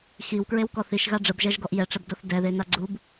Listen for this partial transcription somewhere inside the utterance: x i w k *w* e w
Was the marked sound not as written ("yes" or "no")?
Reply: yes